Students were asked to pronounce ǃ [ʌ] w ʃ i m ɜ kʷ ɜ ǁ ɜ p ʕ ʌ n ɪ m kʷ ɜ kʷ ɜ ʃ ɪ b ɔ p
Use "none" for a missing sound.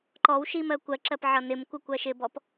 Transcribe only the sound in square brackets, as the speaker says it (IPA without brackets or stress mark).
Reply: ɔ